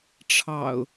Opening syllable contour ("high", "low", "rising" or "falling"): low